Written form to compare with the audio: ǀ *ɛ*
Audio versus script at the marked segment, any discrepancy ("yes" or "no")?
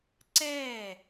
yes